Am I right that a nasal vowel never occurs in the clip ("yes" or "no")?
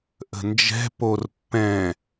no